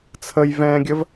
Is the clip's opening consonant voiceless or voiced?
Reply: voiceless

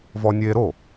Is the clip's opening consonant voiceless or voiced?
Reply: voiced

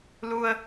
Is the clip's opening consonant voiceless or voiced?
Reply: voiced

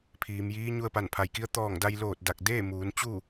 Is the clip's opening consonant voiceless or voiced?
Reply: voiceless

